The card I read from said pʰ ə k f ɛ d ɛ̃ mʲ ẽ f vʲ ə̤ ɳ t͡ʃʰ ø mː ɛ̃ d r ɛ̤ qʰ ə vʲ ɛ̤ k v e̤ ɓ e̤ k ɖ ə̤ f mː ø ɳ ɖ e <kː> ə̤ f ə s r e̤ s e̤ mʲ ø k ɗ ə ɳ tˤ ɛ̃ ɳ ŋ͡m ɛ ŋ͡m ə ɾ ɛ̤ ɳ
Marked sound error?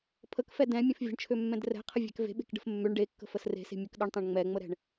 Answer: no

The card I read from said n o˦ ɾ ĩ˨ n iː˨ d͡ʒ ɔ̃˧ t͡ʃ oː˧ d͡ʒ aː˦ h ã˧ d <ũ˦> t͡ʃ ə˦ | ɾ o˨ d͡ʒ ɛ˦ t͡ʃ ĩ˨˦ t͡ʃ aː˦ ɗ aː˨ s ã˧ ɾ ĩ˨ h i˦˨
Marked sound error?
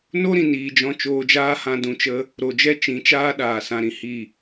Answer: yes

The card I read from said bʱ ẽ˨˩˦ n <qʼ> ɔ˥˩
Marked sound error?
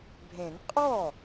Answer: no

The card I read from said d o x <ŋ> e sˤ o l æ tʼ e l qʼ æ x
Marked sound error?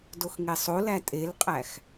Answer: no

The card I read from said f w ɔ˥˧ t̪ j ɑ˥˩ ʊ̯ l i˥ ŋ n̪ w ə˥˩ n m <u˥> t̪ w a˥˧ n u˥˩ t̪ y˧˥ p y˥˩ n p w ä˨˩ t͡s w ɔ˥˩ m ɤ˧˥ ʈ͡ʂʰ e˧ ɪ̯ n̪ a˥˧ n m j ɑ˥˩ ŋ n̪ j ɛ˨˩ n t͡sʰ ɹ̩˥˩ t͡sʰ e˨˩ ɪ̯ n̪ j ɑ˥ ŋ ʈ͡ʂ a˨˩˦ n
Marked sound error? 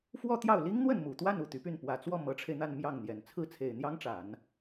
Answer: yes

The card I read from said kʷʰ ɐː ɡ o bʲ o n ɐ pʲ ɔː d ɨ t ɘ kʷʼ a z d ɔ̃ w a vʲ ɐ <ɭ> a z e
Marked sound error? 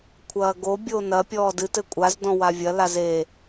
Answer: yes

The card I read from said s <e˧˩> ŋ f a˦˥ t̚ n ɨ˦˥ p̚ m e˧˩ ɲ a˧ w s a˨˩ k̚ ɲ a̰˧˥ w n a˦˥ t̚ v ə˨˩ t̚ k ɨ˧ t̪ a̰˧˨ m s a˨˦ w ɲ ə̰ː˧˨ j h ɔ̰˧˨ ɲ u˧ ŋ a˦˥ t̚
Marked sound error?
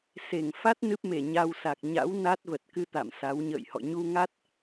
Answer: no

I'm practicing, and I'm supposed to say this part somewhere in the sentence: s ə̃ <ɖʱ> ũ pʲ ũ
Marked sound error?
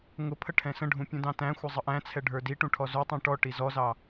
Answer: no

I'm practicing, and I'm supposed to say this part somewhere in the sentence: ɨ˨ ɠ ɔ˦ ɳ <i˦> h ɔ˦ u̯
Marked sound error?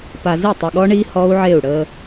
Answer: no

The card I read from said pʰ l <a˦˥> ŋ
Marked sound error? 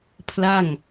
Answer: yes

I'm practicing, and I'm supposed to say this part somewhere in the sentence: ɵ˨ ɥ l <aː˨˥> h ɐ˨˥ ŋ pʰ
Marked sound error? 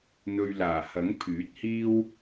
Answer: yes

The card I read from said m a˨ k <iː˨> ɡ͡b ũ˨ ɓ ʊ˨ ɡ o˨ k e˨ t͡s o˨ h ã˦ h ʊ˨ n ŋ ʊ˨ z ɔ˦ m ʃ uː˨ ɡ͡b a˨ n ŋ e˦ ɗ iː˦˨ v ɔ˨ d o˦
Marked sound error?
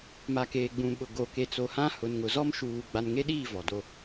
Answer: yes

